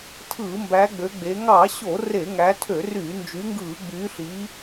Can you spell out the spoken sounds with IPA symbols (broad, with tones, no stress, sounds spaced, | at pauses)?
tʰ ɯː˧˩˧ m b æ˨˦ ɡ͡b ø˨˦ ɡ͡b e˨˦ ŋ ɑ˧˩˧ ɕ o˧˩˧ r e˧˩˧ ŋ æ˨˦ tʰ ø˧˩˧ r y˧˩˧ n d͡ʒ y˨˦ ŋ ɡ ɯː˧˩˧ ɡ͡b yː˨˦ ɬ i˨˦